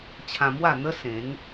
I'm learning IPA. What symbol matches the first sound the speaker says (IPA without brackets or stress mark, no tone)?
t͡ɕʰ